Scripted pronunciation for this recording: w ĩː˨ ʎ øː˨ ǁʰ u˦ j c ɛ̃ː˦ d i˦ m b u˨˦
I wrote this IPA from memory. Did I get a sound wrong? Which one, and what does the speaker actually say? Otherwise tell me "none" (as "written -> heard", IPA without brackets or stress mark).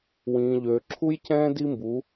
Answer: none